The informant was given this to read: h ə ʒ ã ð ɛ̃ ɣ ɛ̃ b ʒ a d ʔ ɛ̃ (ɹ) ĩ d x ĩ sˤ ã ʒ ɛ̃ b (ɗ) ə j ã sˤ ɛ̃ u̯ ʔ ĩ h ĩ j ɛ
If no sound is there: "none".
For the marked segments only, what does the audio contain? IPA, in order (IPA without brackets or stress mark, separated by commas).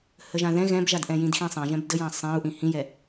j, d